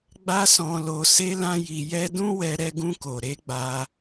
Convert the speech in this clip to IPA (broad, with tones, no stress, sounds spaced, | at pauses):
ɡ͡b a˦ s ɔ̃˧ l o˧ s e˦ l ã˦ j i˧ j ɛ˦ d ũ˦ w ɛ˧ ɾ ɛ˧ ɡ ũ˧ k o˨ ɾ e˨˦ ɡ͡b a˧